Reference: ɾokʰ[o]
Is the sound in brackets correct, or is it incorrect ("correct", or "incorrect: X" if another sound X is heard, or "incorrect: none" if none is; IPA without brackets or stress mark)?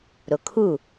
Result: incorrect: u